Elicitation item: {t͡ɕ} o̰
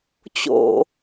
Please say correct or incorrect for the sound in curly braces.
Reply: correct